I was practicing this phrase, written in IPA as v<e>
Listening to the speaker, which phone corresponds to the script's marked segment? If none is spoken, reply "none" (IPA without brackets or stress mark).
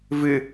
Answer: ɨ